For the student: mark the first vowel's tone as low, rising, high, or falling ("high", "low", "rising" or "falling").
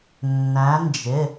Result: rising